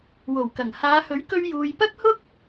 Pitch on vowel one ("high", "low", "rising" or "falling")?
low